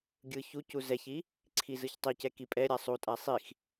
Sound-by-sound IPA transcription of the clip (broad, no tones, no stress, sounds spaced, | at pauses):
ɡʲ ɯ ç u c u z ɛ ç i | ǀʰ i z ɯ ç tˤ i c ɛ k i pʼ ɛ ɾʲ a sˤ u tʼ a sˤ i x